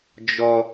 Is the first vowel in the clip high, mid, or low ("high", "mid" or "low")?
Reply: mid